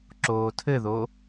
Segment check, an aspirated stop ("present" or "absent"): present